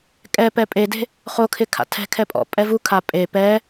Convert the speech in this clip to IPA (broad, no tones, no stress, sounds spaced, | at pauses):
kʼ ɛ p ɛ pʼ e d e̤ | χ o kʰ ɪ kʰ a̰ tʰ ɛ̤ kʰ ɛ pʼ ɔ̰ pʼ ɛ v u kʰ a pʼ e p ɛ